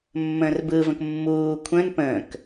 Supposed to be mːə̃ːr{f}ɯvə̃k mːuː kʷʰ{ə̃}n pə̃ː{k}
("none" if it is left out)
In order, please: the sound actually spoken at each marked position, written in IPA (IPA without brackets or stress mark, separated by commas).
b, ə̃, k